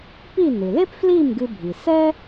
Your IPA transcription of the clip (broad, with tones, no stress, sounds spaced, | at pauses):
p i˥˩ n ɨ˩ l e˥ p f l i˥˩ m ɡ ɨ˧ bʱ i˩ s ɛ˥